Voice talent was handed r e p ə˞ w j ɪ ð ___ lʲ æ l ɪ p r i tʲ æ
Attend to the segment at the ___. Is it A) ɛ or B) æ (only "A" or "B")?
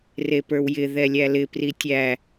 A